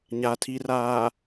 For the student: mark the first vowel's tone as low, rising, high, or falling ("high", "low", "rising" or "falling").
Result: low